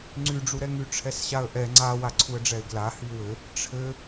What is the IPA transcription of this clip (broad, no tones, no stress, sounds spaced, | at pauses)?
ŋ͡ǀ y ɖ͡ʐ u ɾ ɛ ŋ y ʈ͡ʂʰ ɛ s ɕ a ə̯ ʔ ɛ ŋ͡ǀ a w a ǀʰ u ə̯ ɖ͡ʐ ɛ ɪ̯ ɡ l a h y w ɘ | ʈ͡ʂʰ ɘ